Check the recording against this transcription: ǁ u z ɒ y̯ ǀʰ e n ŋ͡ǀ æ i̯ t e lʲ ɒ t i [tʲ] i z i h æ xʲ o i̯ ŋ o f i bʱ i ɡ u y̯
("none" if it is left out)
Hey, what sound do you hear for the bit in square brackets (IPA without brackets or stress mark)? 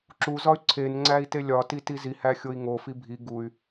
t